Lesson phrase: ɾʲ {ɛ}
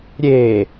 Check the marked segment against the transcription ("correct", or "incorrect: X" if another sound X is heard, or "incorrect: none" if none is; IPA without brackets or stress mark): incorrect: e